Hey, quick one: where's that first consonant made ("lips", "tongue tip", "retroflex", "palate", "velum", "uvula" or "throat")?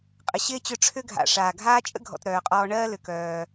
uvula